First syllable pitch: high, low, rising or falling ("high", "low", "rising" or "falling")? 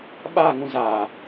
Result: falling